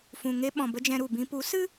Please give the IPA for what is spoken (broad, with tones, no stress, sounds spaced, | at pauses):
f ũ˨ ŋ e˦ ɓ ɔ̃˨ b ə˦ d͡ʒ ɛ̃˧ ɾ u˨ b ĩ˧ p u˨˦ s ɨ˦